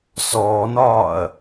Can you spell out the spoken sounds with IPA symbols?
s ɔː n ɒː ɐ̯

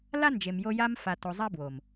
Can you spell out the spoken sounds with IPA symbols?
l a˦ n d͡ʒ e˨ m j o˧ j a˦ m f a˧ t o˧ zˤ a˦ b w o˨ m

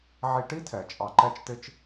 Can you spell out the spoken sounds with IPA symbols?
ʕ i˧ ʈ i˥ tʰ ɛ˩ t͡ʃʼ ɑ˧ ǃ ɛ˥ t͡ʃ t ɪ˥ t͡ʃ

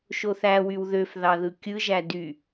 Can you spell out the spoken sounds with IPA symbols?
ʃ o θ æ w y w ð ø f ð ɑ ð ɯ kʲ ɯ ʒ æ d y

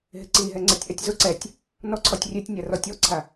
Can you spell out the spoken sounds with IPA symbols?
ɦ ɪ ǀ i ɦ ɛ ŋ͡ǀ ɛ tʲ ʔ ɛ tʲ z ʊ ǀ ɛ tʲ | n ɔ ǀʰ ɔ tʲ rʲ e tʲ nʲ a r ɔ tʲ ɔ ǀʰ a

